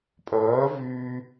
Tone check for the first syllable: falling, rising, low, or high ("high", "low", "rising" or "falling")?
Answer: rising